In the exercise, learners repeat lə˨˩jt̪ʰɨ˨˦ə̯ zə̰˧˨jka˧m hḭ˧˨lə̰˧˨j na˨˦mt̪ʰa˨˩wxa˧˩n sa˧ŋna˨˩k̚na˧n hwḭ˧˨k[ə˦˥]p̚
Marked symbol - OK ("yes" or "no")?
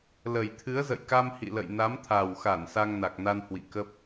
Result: yes